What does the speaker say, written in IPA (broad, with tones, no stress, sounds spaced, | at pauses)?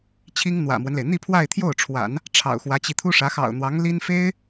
t͡ɕʰ i˥ ŋ n̪ w ä̰˨˩ m w ə˦ n l e˩ ɪ̯ n̪ i˥˧ pʰ w a˥˧ ɪ̯ t̪ʰ j o˥˩ ʊ̯ ʈ͡ʂʰ w a̰˨˩˦ n | ʈ͡ʂʰ ɑ̰˨˩ ʊ̯ x w ä˧˥ t͡ɕ i˧ t̪ʰ u˥ ʂ ä˧˥ x ɑ̰˨˩ ʊ̯ n̪ w ɑ˧˥ ŋ l i˥ n f e˥ ɪ̯